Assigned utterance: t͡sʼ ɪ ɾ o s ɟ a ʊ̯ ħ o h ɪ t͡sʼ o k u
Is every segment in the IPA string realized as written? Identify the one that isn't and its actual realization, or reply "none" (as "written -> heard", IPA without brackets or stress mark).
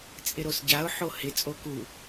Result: none